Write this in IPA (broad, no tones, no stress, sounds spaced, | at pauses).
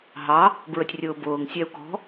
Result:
ɦ ɑ | b ɹ ə tʲ rʲ ʊː b ʊː ŋ sʲ æ u̯ k ɔ̤